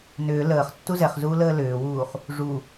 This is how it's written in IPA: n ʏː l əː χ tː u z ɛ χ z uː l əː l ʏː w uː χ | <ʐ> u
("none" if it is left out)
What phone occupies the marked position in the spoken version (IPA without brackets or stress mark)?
ʐ